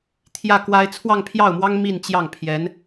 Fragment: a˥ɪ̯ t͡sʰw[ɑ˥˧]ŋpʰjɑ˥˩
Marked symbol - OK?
yes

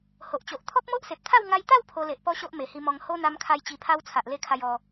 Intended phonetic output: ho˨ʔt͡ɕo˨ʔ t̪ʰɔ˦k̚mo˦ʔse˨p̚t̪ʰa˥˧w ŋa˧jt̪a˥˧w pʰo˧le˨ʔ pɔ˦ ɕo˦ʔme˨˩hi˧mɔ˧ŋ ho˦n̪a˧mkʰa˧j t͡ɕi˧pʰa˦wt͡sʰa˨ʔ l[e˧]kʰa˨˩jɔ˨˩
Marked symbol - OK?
yes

